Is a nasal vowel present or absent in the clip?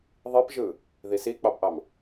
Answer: absent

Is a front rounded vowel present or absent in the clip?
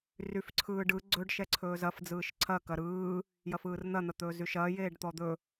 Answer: present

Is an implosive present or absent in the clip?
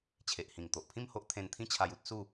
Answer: absent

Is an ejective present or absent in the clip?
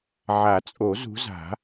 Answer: present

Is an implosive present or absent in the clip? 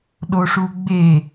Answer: present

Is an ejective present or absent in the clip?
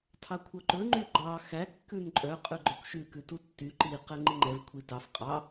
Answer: present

